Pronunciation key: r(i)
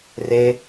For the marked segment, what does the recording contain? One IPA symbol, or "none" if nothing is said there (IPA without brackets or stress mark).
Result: e